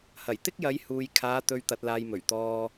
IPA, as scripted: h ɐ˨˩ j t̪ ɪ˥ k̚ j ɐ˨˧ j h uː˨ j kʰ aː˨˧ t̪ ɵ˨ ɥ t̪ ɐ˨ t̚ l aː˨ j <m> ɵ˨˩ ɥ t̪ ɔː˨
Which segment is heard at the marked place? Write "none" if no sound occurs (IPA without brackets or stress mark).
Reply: m